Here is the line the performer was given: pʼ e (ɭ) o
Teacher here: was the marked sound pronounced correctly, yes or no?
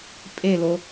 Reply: no